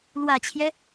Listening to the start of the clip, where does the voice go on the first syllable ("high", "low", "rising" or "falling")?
low